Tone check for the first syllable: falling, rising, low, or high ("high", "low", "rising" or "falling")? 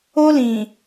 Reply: high